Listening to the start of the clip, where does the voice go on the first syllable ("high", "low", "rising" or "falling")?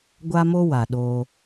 high